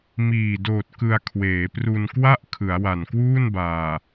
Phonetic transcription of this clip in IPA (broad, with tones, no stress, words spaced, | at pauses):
miː˨˩doː˨˩t̚ kɯ˧a̯kʰweː˩˦pru˧n kwa˥˩ʔ kʰɯ˩˦a̯wa˨˩nkwuː˥˩nbaː˨˩